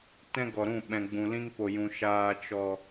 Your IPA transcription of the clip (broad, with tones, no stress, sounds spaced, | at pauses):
t ɛ̃˦ ɡ ɔ˨ ɾ ũ˦˨ ɓ ɛ̃˨ ɡ͡b ũ˨ l ĩ˧ ŋ p o˨ j ũ˨ ʃ aː˨ t͡ʃ ɔ˨